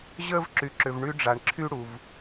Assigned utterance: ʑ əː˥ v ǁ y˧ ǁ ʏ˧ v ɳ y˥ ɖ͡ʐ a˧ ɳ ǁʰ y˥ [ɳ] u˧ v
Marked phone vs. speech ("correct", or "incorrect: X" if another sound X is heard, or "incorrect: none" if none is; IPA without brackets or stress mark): incorrect: ɽ